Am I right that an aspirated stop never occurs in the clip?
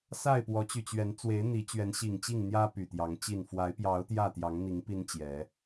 yes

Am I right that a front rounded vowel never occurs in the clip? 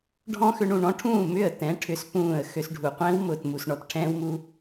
no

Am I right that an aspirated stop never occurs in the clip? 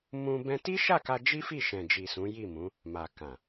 yes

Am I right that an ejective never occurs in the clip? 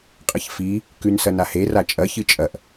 no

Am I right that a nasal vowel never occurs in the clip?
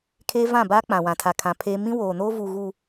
no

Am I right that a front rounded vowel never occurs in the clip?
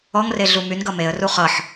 no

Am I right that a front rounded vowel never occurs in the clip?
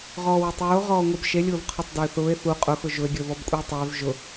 no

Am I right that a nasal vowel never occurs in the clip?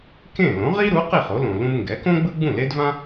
no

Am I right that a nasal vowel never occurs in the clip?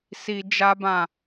no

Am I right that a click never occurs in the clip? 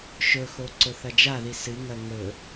no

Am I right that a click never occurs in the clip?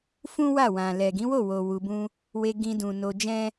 yes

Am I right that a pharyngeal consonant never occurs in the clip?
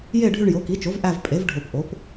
yes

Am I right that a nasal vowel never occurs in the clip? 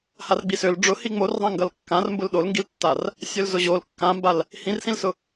no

